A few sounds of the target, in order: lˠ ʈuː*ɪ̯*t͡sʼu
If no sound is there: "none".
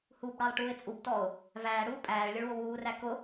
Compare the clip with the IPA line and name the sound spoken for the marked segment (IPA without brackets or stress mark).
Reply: ɪ̯